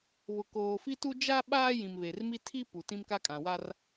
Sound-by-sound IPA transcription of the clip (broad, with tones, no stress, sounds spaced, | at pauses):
β ʊ˨ k oː˨ f i˦ t u˦ d͡ʒ a˦ ɓ aː˦ j ĩ˨ m β e˨ r m i˦ tʰ i˦ p u˨ t ĩ˦ m k a˦ kʼ ã˨ w a˦ r